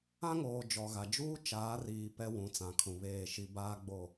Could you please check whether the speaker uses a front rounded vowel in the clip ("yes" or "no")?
no